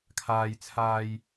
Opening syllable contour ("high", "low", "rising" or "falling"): low